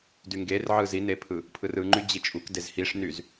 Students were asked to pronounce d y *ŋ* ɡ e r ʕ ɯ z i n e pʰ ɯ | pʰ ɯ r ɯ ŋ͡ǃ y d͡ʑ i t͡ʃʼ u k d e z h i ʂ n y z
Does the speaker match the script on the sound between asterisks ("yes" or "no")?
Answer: yes